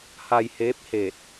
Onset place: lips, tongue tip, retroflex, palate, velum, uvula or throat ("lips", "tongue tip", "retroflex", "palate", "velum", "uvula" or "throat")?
throat